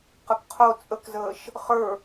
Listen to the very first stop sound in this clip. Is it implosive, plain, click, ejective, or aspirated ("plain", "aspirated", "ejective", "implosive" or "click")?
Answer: plain